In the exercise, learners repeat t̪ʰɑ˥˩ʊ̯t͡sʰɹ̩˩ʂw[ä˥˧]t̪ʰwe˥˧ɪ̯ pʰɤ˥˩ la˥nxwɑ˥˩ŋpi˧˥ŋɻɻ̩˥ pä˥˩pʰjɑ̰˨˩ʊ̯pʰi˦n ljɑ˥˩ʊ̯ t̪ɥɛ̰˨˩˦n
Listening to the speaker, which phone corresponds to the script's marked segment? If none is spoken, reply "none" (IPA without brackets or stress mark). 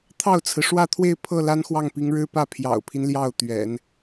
ä˥˧